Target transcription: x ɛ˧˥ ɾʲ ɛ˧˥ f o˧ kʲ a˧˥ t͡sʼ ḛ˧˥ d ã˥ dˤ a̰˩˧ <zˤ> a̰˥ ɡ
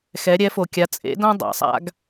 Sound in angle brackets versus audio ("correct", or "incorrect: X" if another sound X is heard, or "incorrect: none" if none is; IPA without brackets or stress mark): incorrect: sˤ